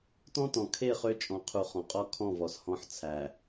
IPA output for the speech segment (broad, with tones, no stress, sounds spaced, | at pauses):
t ɔ̃˦ t ɔ̃˨ kʰ e˦˨ χ ø˦ t͡ʃʼ ɔ̃˨ qʰ u˨ χ ɔ̃˨ qʼ ɔ˦ kʰ ɔ̃˦˨ v ɔ˨ s h ɔ̃˦ ħ t͡sʰ æ˨